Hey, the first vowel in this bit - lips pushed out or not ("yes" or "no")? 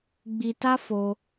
no